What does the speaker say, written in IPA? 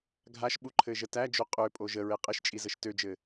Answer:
ɡʱaʃɓuǃʰɘʒə tæd͡ʒo qʼøpʼo ʒəɹe qʼɘʃt͡ʃʼi zəʃtød͡ʒɘ

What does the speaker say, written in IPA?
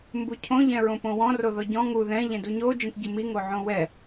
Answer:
mbucʰõ ʎɛ̃ɹõpõwɔ̃ roðɔɟɔ̃ ŋu ðɛ̃ ʎɛ̃duɲo d͡ʒĩtɟɨmi ŋoʕõwɛ

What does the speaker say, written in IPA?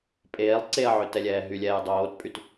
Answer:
pʼeːlˠ ǀeɐ̯ʕø tɛlʲɛːɦylʲɛːj dˤoːtpʼyt

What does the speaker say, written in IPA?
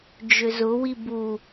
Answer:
d͡ʒʏzʊwi bu

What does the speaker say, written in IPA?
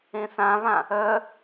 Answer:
ẽθãβã | œ

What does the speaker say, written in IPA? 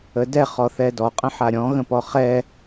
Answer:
ədɛ χɔθɛdɔ qʼə̃ħaɾʲɔ̃ ɣə̃pɔχɛ

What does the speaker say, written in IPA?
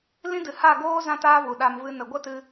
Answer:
lĩ˦dɨ˨ ha˦˨ɡoː˦ zã˦taː˦ vu˨ɗa˧m vɨ˦ nə˨ɡʷə˦tɨ˧

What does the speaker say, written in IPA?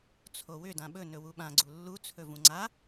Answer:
t͡sʰowʏ dãɓɵnɵ wuɓã ɡ͡ǀulːut͡sʰɵ vũŋ͡ǀa

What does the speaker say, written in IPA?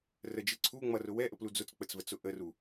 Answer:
rəd͡ʒɪ ǀʰu ŋ͡mʌrʊ wɛʔəplu d͡zʊt͡sk͡pət͡svət͡sʊ ʔəru

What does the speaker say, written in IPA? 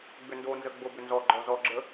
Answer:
ɡ͡bʏndonzə ɡ͡bobʏnzɔɡ͡ǃɔ zɔɡ͡ǁə

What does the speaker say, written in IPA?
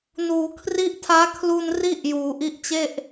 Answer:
nuː˩˦ kʰri˦˥ʔtʰaː˦˥kʰlu˧n ri˥˩ʔ juː˩˦ʔi˦˥ʔt͡ɕe˥˩ʔ

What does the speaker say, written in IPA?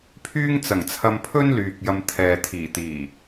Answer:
pʰyː˥ŋt͡sɐ˨˩ŋt͡sʰɐ˧m pʰɵ˥n lyː˨k̚ jɐ˨m t̪ʰɛː˨ t̪ʰiː˨˩t̪iː˨˩

